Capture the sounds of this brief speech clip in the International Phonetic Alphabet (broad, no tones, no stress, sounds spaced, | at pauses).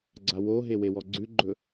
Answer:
ɡ͡ǀ a w o ɦ e w e w ɔ ɡ͡ǀ ʉ ɡ͡ǃ ɵ